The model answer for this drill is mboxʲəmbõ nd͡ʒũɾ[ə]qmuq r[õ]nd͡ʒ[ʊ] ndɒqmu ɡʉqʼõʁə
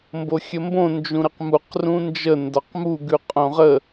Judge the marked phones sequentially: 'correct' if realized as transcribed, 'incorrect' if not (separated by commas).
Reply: correct, incorrect, incorrect